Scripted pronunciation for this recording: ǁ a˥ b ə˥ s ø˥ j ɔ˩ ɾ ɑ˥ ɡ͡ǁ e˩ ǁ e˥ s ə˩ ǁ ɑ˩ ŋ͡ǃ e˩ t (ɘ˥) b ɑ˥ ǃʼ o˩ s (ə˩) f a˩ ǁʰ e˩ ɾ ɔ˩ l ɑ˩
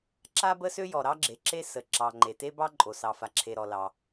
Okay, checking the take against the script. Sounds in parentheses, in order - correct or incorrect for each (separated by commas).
incorrect, incorrect